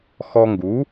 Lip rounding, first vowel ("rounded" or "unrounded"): rounded